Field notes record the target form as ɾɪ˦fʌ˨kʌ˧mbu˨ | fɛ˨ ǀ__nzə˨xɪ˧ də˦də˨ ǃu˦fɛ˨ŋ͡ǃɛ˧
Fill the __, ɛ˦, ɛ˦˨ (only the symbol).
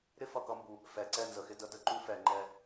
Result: ɛ˦˨